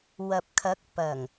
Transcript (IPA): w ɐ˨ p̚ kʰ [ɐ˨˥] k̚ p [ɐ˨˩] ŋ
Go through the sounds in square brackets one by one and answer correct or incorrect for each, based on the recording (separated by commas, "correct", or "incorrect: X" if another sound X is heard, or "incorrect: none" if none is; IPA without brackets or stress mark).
correct, correct